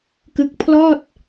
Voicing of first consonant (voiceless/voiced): voiceless